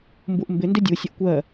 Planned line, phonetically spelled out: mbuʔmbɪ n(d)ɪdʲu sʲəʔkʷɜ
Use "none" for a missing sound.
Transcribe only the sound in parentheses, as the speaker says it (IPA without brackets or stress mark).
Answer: d